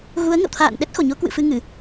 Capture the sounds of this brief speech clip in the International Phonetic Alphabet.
ɣ u˨˦ ə̯ ŋ ə̰˧˨ w t̪ʰ a̰ː˧˨ n ɗ ɛ˦˥ t̚ x o˧˩ ɲ o˨˦ k w ɨ̰˧˨ f ɨ˧ ŋ ɨ˧˩˨

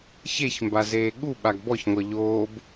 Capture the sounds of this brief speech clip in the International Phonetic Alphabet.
ç e ç m b a z eː ɠ u ɓ a ɡ b ɔ ç ŋʷ ʌ ʎ oː b

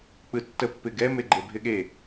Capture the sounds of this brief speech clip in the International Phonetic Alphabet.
k͡p ɯ tː ə pː ɪ ɡ ɛ m e ɡ͡ǃ e bʱ ɪ ɠ e

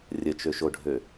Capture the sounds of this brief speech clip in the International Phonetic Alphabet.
rʲ ə t͡ʃ ø ʃ o ɖʱ ø

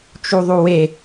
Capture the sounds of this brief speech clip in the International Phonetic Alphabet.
t͡ʃ u ðˤ u w e

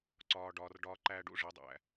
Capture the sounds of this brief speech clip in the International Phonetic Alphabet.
ǀ ɒː˨ ɖ ɒː˨ r ɖ ɒː˧ ǃ æː˧ ɖ ṵ˦ ʐ e˨˦ dˤ æ̰˨

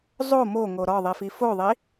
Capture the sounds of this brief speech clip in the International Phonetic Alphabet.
zˤ o m o ŋ o ɾ ɒ ðˤ i f i f o ðˤ i

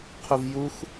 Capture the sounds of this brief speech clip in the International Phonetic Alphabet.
qʰ u v j u x

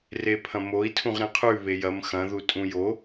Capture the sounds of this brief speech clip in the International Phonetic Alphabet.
r e pʰ ɐ̃ m o i̯ tʰ ũ ʁ ɾ ẽ qʰ ʉ β e j ɐ m x ɐ̃ ð u tʼ ũ j o

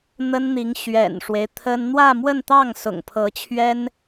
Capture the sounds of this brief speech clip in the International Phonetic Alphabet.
n̪ ə˥ n n̪ i˧˥ ŋ ɕ ɥ ɛ̰˨˩ n ʂ w e˦ ɪ̯ t̪ʰ ə˥ n n̪ w ä˥˧ m w ə˥˧ n t̪ ɑ˥˩ ŋ s ʊ̰˨˩ ŋ pʰ ɤ˧˥ t͡ɕʰ ɥ ɛ˥ n

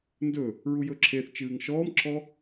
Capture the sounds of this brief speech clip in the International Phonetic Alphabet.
n d ɵ | ɹ u j ɵ ǁʰ e θ t͡ʃ ɨː ŋ ʃ ɔː m ǁʰ ɔ

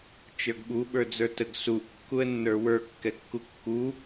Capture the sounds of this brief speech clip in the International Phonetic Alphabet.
t͡ʃ ə˞ ɡ ɓ u ɓ ə˞ d͡z ə˞ t ə ɡ s u ʔ kː u ə̯ nː ə˞ w ə˞ kː ɛ kː u kː u

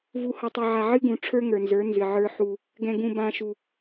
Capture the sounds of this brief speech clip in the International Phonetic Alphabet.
v u˨ h ʌ˨ tˤ ə˨ ʕ a˨ ʕ ɨ˦ ɡ ũ˨ ʈ͡ʂʰ ə˞˦ ŋ ə˞˨ n z ə˞˨˦ n z ɨ˨ ʕ ə˞˦ ħ u˦ | ɡ ɛ̃˨ ɡ ũ˨ b ã˨ ʃ u˨

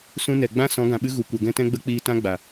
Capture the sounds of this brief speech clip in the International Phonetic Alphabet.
s ũ˦ n ɛ˨ ɡ͡b ã˦ s ɔ̃˨˦ ɡ ã˨ ɓ ɨ˦ ɣ u˨ kʷ ɛ˨ ɡ ɛ̃˦ t ɛ̃˦ ɡ͡b ə˦ k͡p iː˧ t ã˦ ɡ͡b a˨

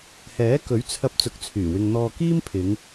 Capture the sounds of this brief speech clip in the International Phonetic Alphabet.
h ɛː˨˥ k ɵ˨˥ ɥ t͡sʰ ɐ˧ p̚ t͡s ʊ˨˥ k̚ t͡sʰ yː˨˩ w ɪ˧ ŋ n̪ ɔː˧ k iː˥ m pʰ ɪ˨˧ ŋ

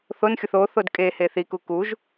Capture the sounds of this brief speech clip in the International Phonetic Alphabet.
θ o n xʲ o θ o θ o d kʼ e h e θ i k u k u ʒ

